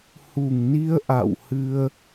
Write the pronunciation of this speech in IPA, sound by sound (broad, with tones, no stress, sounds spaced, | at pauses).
h u˨˩ ŋ n i˧ ə̯ ʔ a̰˧˨ w h ɨ˧ ə̯